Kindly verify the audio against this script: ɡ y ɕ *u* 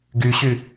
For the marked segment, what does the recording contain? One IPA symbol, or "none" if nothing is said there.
y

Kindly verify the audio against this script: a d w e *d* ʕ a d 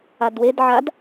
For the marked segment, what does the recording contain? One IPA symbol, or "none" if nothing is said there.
d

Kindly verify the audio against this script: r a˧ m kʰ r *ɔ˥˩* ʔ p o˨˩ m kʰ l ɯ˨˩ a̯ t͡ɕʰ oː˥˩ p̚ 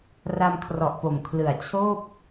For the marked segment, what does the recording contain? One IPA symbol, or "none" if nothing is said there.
ɔ˨˩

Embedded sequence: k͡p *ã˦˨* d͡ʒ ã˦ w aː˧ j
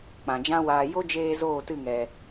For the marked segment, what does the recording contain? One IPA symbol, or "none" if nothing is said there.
ã˨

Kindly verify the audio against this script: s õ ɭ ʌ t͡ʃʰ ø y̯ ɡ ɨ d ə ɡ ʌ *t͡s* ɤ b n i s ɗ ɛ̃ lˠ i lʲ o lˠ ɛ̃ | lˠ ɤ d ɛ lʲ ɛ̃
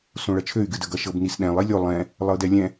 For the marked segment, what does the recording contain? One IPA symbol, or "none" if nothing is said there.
ʃ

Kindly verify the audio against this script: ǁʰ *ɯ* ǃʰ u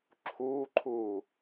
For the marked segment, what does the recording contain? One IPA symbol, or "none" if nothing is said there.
u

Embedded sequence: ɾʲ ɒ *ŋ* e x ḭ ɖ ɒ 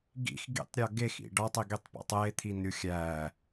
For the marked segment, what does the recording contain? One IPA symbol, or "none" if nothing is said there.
ɡ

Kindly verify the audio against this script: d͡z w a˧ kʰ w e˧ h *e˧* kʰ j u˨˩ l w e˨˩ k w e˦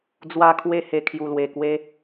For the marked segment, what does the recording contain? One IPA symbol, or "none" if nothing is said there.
e˨˩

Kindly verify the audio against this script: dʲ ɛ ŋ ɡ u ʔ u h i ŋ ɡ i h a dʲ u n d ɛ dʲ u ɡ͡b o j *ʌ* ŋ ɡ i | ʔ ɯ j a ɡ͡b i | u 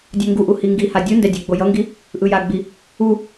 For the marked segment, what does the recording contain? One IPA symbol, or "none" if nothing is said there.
ʌ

